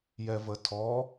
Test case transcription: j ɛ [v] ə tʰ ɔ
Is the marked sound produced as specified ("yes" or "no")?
yes